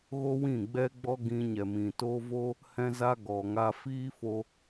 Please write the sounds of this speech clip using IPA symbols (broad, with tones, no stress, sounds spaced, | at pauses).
ɣ o˦ w ĩ˦˨ ɡ͡b ɛ˦ ɡ͡b ɔ˦ ɡ ĩ˧ ɲ ɛ˨ m ĩ˨ t o˦ v o˦ | h ɛ̃˦ z a˦ ɡ ɔ˨ ŋ a˧ f iː˦ f o˧